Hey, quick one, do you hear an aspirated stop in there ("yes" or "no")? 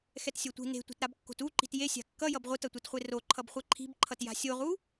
yes